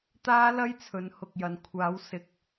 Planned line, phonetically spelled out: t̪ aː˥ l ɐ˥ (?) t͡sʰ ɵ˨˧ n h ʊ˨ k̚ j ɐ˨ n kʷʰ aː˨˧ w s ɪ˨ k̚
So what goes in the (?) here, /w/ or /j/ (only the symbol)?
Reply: j